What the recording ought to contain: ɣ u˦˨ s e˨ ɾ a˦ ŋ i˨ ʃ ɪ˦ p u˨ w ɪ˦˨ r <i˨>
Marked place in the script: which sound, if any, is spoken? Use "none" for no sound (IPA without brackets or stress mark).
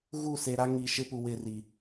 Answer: i˨